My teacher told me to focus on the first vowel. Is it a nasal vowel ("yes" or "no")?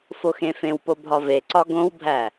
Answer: no